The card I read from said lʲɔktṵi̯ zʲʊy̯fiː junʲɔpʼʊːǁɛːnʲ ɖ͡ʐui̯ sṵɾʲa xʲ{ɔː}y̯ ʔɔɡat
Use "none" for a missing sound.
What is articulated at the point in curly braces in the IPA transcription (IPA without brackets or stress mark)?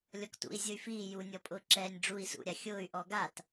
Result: ʊː